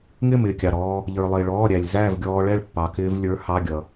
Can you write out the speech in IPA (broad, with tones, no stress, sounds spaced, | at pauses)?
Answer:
ŋ ɪː˥˨ m ɪː˥˨ kʲ ɑ˩ ɾ ɔː˧ | ʎ ə˞˩ lˠ ɪː˩ ɭ ɔː˩˧˩ ɾʲ æ˩ lʲ z æː˥˨ v ɡʲ ɔː˧ ɭ ɛ˥˨ ɭ pː ɑ˩ k ɪː˧ v lʲ ə˞˨˥ h ɑ˩˧˩ ɡʲ ʌ˩